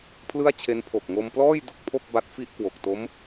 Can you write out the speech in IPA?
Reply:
pʰlɯ˥˩a̯t͡ɕʰe˦˥n pʰo˨˩k̚ŋo˧mplɔː˥˩j du˥˩k̚pʰo˥˩k̚ ba˦˥t̚fi˥˩ʔ kwo˨˩k̚to˦˥m

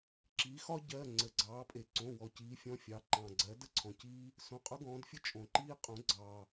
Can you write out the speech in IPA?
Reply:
ǁi˩˧ xɒ˦ ɟɜ˩˧˩ ŋ͡ǀə˩ɡ͡ǀɑː˩˧pʼe˩ǀõ˩˧˩ wɔ˩ciː˩˧fʲɔ̃˩˧˩fʲɑ˩˧ ǃɑ̃˩ɡ͡ǀɜ˩˧də˦ ǀʰɔ̃˩ciː˦ | sõ˩˧˩qʼʊ˦ɡɔ̃ː˩˧dfʲə˦ t͡ʃʼõ˩ǃiː˦ qʼõ˩˧ɡ͡ǀɑː˩

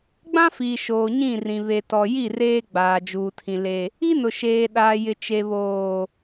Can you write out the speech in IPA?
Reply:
ɡ͡bã˦fiː˨ʃoː˨ ɲĩ˦˨rĩ˨ βe˨tɔ˨ji˦˨ reː˦ɡ͡baː˨d͡ʒuː˨tʰĩ˨ le˨ | i˦nʊ˨ ʃeː˨ɗaː˨jɪ˨ t͡ʃe˨βoː˨

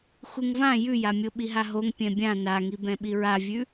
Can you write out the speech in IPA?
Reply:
xuŋvã jʉjamʲo ɓiɦaɦoŋ pʲɛ̃bʲã naŋibɛ̃ ɓiɹavʲʉ

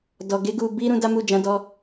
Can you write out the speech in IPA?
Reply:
dɔ˨ ɡe˧ɡu˨ bi˧ ɾũ˧da˦mu˦˨d͡ʒã˨˦ dɔ˧

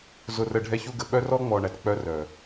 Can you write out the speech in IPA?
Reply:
zʊ˨rə˨ ɖʱɛ˦çu˦ɡə˨ ɓœ˦rɔ˦ŋ͡mɔ˨ɳæ˨t k͡pœ˦rœ˨

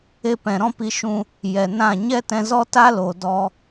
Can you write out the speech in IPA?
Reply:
e˧pɛ̃˨ ɾɔ̃˦pi˧ʃũ˧ | jɛ˨nã˦˨ ɲɛ˦tɛ̃˧zɔ˦ta˦ lo˨ dɔ˧

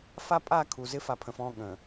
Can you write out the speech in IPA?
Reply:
fa˦pʼa˦˨ kʰu˨zɪ˦ fa˨pʰə̃˨fɔ̃˦˨ ɠə̃˨

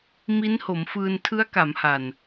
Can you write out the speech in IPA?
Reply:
mi˦˥nho˩˦mfɯː˧n tʰɯ˦˥a̯ka˩˦mha˨˩n

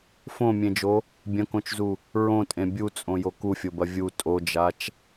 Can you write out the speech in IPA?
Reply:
fõmʲẽd͡ʒo | bʲɐ̃kõt͡ʃzu | ɹõtʼẽ bʲut͡sʼõjo kufʲobɐ vʲu tʼod͡ʒat͡ʃ

